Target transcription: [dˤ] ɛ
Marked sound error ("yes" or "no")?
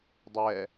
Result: no